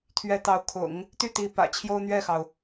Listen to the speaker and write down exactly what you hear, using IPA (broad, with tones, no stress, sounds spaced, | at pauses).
t̪ʰ ɥ ɛ˧˥ t̪ ɑ˧˥ ʊ̯ kʰ ʊ̰˨˩˦ ŋ | t̪ y˥˩ t̪ i˧˥ p ä̰˨˩ t͡ɕʰ j o˥ ʊ̯ n̪ ɥ ɛ˥˩ x ɑ˩ ʊ̯